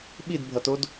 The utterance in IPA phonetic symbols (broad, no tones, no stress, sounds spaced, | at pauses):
ɓ i d bʱ ʌ t o d